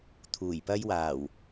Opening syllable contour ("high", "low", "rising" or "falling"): low